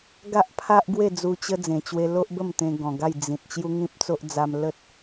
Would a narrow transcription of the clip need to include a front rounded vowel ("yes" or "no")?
no